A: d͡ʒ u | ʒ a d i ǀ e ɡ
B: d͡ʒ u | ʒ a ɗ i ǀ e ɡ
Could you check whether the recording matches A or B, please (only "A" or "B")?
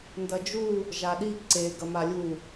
B